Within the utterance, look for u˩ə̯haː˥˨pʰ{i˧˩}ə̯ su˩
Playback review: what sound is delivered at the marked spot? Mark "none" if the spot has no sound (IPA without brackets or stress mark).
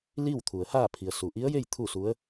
i˩